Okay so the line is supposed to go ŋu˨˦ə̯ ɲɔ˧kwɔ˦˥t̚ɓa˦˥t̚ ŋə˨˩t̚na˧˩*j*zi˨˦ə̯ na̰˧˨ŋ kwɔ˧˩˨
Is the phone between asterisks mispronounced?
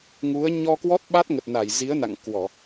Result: no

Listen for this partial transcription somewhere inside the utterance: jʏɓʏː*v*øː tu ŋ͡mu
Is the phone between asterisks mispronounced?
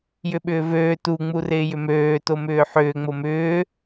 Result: no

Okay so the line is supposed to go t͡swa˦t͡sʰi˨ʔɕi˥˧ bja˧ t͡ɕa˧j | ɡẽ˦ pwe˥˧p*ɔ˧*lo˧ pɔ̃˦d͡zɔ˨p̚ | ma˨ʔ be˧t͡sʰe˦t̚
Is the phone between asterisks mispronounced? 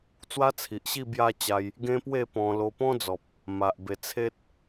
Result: yes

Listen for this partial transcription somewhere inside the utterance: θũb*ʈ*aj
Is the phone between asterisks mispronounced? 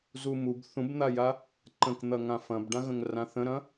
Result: yes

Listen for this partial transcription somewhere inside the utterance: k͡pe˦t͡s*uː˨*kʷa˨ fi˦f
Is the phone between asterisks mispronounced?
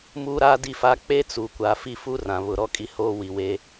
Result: no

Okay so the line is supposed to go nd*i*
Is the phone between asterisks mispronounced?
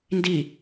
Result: no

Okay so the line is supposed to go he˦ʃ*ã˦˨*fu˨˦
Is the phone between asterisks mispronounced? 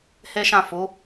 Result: no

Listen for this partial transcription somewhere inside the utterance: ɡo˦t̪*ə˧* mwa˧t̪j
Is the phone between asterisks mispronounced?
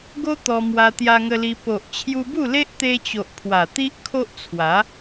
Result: yes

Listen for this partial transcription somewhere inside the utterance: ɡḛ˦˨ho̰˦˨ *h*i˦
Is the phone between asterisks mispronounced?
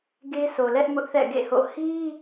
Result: no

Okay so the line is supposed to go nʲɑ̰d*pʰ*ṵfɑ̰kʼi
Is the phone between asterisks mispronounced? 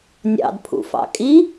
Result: no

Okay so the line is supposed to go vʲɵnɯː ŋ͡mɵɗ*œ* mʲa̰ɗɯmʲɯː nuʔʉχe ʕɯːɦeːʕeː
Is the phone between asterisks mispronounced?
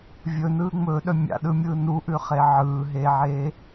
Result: no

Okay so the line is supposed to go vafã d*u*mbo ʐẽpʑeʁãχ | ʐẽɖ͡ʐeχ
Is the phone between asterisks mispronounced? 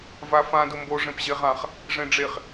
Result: yes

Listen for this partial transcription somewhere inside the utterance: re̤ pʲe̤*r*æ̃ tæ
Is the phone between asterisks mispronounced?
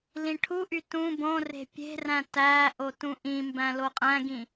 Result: no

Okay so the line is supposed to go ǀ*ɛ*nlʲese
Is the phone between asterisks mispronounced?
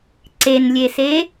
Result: yes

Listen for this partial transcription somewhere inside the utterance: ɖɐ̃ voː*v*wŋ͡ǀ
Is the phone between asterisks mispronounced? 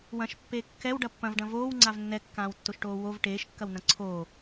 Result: yes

